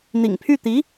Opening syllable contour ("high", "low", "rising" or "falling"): low